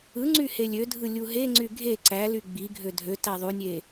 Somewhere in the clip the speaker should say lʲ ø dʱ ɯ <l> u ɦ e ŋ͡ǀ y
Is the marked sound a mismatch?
yes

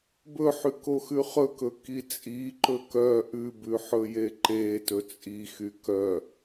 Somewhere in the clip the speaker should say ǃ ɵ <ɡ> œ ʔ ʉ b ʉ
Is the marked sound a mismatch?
yes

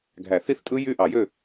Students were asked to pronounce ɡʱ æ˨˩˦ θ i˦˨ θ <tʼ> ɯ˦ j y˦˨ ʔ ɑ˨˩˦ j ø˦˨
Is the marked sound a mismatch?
no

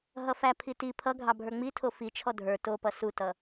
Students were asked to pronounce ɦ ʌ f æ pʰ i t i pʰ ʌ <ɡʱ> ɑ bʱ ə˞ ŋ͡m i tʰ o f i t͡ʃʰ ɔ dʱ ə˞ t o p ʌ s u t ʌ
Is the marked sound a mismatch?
no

